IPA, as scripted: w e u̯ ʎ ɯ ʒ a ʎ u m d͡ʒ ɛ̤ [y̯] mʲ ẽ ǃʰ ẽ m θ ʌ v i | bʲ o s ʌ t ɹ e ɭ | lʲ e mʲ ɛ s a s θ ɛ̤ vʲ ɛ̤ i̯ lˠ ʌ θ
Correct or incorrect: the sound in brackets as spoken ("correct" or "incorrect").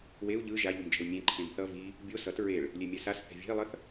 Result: incorrect